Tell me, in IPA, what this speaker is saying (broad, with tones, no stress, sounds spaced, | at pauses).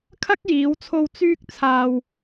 kʰ ɐ˥ k̚ j iː˨˧ w t͡sʰ o˧ w t͡s yː˧ k̚ t͡sʰ aː˨ w